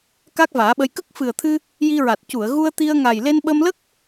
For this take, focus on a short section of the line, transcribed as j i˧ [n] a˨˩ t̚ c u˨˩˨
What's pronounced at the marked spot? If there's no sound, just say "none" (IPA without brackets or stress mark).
ɹ